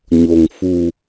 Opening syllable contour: low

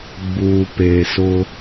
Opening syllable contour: low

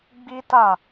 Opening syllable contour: high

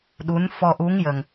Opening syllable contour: rising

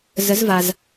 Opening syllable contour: rising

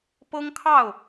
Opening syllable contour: high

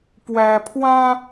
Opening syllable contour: high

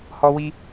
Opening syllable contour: high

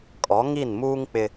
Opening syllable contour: rising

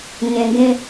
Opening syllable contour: low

